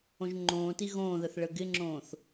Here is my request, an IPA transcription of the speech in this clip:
õʒŋ͡ǃõːti ɣõːðəθ ɭəɡɪŋ͡ǁõːθ

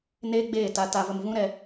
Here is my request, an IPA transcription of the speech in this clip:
neː˦ɡ͡beː˦˨ta˧ ta˧və˧mvũ˦ɾɛ˧

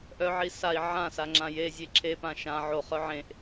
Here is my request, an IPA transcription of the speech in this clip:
ʔœʕi sai̯ ʕãsa ŋ͡ǁãjezʲe ǁʰepã ʃã ʕoχœ ʕẽʔ

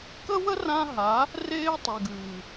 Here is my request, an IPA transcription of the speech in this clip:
kə˦wə˦ rã˦ɦa˨˦ | reː˦tˤe˨ɡʉː˨

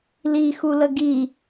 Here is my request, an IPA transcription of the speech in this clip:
lixulə ɡi

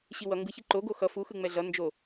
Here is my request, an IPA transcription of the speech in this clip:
ɕiwʌ ŋɡɯçi ǃoɡo xʌ fuxɯ ŋ͡mɛɮʌ nd͡ʒo

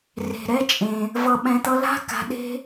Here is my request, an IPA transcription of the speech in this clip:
re̤˨ɾɛ˦t͡ʃʼẽ˨ | vʌ˨ɓɛ̃˨t̪ʌ˧la̤˦ ka̤˧ɗe̤˦

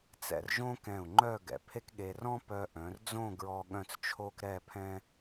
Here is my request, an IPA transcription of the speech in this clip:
t͡sɛ̰˧rʒõ˥kɛ̃˧˩u̯ ŋ͡ǃœ˥˧ɡɛ̰˩˧pʰe˥kɠe˧ rɔ̃˥pœ˧ ʔœ̃˩˧rd͡zõ˥˧ɡɹɔ˧ ɠœ̃˥˧t͡st͡ʃʰo˥k ɾɛ˥˧pʰɛ̃˥

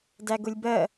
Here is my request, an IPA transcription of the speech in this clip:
dæɡʊlʲbɜ

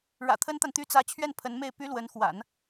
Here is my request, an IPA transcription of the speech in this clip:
ɻä̰˨˩t̪ʰə˥nt̪a˨nt̪y˥ t͡sä˧˥t͡ɕʰɥɛ˥˩n pʰə˧˥nme˥˩ɪ̯ py˥lwə˧˥nxwa̰˨˩˦n

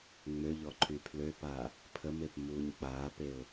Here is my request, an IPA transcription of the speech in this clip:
ŋ͡møʎɔ ǃʰypʰløpaː | pʰəmep muːɲk͡paːpeʊ̯

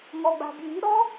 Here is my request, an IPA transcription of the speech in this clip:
ŋɔɡ͡ba̤bji̤ ɾɔ

